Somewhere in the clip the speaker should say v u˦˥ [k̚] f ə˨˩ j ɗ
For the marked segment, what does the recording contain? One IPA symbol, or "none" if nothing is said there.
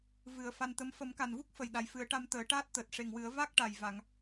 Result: k̚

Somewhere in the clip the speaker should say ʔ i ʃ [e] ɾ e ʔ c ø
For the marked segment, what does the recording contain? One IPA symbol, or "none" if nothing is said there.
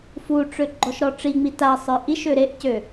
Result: ø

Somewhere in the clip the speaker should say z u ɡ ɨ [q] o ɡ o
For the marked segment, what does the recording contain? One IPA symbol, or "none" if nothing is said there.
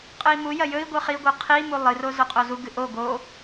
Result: ʔ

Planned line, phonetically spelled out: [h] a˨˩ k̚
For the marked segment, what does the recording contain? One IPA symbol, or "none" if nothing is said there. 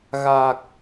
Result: ɣ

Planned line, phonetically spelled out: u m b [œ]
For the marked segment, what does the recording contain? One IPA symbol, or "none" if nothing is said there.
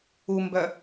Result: œ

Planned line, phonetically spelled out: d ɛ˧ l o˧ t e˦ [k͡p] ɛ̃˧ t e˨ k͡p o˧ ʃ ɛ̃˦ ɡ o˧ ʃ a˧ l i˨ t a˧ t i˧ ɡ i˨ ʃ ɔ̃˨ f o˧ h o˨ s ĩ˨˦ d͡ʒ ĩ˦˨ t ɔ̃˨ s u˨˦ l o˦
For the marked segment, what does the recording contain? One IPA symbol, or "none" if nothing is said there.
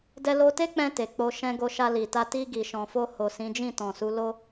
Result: k͡p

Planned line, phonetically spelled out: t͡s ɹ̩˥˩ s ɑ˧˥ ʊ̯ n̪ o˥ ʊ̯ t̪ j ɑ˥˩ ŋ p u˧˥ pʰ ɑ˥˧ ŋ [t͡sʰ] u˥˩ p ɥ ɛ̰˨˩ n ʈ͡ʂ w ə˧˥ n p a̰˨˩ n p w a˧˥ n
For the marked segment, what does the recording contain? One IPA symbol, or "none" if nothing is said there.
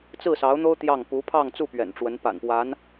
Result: t͡s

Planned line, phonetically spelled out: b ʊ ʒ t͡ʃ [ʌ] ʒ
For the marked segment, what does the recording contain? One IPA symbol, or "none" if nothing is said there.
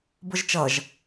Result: ʌ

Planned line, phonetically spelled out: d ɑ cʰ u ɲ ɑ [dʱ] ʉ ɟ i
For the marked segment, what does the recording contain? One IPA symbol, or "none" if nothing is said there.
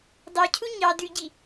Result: d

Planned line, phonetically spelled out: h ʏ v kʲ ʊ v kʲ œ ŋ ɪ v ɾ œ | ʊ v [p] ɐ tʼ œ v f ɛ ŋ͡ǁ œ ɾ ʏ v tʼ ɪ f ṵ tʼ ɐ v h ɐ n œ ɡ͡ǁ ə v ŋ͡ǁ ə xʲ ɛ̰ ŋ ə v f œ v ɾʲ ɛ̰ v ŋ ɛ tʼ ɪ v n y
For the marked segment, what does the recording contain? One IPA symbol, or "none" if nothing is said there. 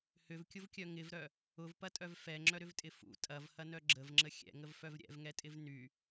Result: p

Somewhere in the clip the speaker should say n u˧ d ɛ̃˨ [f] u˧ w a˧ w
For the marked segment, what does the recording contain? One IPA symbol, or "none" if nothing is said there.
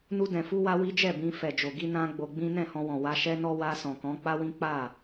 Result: f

